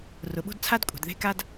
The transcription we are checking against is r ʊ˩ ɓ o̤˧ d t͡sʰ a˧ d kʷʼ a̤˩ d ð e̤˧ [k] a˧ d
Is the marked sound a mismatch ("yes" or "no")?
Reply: no